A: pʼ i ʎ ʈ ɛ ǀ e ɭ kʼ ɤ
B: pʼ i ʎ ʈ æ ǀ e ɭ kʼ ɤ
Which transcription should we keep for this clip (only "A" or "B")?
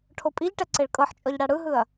A